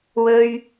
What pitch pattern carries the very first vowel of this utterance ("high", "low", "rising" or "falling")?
high